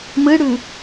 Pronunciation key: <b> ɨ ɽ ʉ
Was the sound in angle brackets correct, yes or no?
no